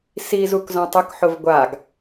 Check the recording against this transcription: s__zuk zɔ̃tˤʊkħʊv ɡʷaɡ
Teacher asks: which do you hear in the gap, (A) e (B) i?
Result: B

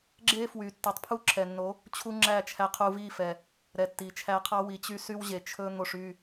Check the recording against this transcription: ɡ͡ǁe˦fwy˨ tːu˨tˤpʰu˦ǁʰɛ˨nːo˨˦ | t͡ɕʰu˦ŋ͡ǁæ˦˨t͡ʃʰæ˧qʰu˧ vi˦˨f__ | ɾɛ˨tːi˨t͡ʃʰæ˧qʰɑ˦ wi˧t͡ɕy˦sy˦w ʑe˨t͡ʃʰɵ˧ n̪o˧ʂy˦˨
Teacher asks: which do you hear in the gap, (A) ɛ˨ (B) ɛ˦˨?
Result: A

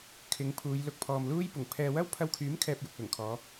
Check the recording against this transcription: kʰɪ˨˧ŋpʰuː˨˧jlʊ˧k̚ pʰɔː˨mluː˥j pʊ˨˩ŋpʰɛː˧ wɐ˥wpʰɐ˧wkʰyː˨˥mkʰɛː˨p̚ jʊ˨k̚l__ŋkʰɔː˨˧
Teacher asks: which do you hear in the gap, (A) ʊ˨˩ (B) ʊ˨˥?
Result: A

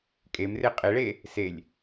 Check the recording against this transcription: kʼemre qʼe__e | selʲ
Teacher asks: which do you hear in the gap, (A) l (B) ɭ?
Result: B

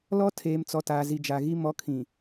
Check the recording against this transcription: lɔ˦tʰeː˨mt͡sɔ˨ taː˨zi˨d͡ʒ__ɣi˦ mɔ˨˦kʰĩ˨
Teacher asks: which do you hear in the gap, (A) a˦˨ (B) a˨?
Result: B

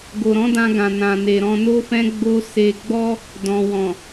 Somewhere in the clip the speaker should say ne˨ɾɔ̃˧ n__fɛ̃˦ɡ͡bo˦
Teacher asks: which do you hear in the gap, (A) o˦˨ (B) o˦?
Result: B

